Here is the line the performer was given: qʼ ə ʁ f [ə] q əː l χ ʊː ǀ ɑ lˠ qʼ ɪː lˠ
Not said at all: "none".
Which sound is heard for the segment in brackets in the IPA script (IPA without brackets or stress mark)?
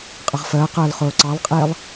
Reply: əː